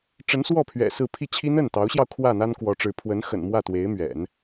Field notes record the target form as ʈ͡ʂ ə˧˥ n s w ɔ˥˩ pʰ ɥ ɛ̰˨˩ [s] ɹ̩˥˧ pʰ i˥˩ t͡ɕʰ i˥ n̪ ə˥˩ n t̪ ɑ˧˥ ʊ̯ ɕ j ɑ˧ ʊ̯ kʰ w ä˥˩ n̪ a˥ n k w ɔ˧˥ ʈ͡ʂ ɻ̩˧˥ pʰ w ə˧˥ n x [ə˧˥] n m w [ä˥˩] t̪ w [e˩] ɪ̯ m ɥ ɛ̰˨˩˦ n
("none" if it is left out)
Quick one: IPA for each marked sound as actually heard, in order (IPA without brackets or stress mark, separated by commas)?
s, ə̰˨˩, ä˥˩, e˧˥